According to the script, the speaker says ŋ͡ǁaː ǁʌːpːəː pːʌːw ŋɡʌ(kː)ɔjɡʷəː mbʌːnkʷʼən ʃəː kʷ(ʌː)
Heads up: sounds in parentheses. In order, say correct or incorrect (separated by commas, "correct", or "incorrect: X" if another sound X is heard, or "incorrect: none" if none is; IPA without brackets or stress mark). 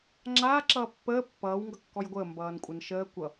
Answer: correct, incorrect: ʌ